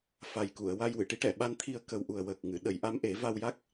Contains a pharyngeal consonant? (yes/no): no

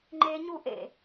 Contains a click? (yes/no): yes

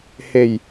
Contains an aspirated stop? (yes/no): no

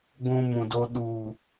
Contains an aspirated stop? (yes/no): no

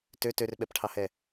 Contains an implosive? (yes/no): yes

